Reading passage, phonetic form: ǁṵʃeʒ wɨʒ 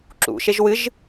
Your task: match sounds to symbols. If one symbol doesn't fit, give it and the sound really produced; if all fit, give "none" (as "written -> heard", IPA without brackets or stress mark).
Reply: none